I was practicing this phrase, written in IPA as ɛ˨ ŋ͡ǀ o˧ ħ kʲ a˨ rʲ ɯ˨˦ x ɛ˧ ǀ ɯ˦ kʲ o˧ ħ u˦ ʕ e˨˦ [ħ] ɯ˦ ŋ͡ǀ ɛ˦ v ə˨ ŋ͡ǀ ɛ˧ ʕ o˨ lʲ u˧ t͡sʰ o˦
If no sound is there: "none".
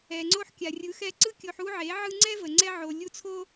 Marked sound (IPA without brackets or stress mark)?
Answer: ʕ